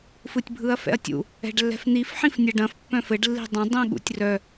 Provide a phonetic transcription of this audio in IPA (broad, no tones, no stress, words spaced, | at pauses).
fɯtʲbʱɯɐ̯fɛ̰ɐ̯tʲṵ | ɛ̤ɖlːɛ̤fn̪if ħĩfnʲɐɖɐ̃f pːœ̃fɘɖ lːi̤dˤɐ̃ dˤĩɠṵtʲrœ